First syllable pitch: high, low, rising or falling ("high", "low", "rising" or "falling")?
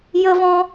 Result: high